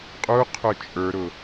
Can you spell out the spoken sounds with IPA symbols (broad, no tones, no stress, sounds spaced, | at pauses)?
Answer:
qʼ u qʰ ʊ t͡ʃʼ ə˞ ɾ ʊ